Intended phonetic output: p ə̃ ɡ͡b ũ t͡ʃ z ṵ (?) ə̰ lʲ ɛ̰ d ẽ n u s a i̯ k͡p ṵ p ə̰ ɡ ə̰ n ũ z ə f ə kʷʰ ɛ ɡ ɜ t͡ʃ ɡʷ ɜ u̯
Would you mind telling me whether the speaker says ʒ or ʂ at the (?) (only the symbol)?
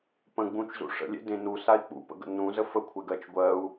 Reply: ʂ